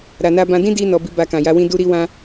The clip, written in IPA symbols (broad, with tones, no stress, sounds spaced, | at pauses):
ɾ a˨ n a˧ b ã˧ d ĩ˦ d i˧ n ɔ˨ b i˧ b a˧ k ã˨ j a˧ w ĩ˦ d u˦ ɾ i˦ w ã˦